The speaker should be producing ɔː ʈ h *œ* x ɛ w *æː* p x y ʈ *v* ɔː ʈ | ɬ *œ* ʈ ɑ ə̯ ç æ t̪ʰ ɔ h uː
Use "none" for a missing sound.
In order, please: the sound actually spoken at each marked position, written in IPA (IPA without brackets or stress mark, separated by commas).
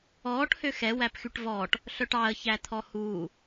ø, æ, v, œ